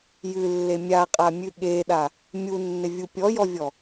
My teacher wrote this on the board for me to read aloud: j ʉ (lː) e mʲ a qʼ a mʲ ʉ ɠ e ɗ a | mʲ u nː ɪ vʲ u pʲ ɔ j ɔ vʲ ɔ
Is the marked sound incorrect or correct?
correct